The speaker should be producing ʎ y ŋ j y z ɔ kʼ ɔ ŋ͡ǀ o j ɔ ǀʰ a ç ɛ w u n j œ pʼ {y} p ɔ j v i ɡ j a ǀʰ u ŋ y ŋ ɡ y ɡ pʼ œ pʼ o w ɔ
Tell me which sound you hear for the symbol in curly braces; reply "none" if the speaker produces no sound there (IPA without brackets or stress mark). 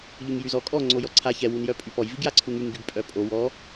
y